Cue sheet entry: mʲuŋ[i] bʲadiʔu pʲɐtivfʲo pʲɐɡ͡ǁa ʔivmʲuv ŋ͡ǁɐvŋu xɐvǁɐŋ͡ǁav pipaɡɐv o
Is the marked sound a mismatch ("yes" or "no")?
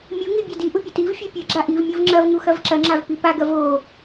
no